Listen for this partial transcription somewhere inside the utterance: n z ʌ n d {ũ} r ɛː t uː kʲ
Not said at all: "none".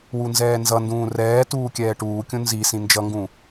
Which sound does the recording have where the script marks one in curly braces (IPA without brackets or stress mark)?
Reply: ũː